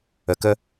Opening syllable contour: low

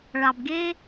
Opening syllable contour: low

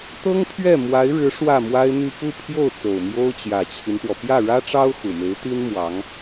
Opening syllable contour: high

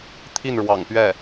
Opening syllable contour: falling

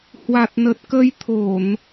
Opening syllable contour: low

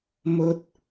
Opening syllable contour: high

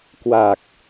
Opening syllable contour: low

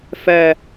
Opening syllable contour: low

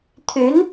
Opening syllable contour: rising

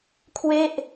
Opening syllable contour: falling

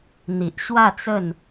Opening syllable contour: low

